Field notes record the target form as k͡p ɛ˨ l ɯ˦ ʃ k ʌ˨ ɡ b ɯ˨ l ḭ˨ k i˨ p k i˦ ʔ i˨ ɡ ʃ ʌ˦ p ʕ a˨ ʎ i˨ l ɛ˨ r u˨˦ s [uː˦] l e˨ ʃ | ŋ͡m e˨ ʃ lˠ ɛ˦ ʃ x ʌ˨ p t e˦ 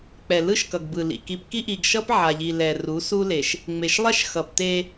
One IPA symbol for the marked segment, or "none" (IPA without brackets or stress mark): u˦